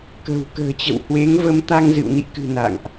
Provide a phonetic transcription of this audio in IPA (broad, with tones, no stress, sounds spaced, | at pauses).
k ə̤˨˩ w k ə̤ː˨˩ t͡ɕ ə̰˧˨ w h w e˨˦ ŋ v ə˨˦ m t̪ a˧ ŋ z ɨ̰˧˨ w n ḭ˧˨ k ɨ̤˨˩ n a̰˧˨ ŋ ʔ